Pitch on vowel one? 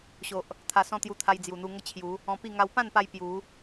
low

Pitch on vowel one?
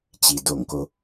low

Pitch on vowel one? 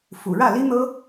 low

